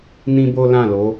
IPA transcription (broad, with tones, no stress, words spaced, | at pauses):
nĩ˦ bo˦lã˦˨lo˨˦